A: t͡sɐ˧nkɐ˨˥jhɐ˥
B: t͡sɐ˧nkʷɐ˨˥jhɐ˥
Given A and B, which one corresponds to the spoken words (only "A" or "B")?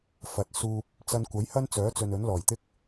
B